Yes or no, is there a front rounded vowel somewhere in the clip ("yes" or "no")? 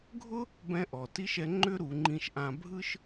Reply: yes